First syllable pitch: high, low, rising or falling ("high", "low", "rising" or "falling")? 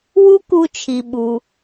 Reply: high